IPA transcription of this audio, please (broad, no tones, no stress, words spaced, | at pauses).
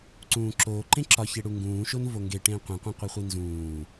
ǀũːǁoː ǃẽǁɒçe ɽuŋɡũːʃon voŋɡe ʈẽːqʷĩqʷæ̃ qʷiχʷinzũː